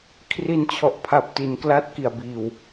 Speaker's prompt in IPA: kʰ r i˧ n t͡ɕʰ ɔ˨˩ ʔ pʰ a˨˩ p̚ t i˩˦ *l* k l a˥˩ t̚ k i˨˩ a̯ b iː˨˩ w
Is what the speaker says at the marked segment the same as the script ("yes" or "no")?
no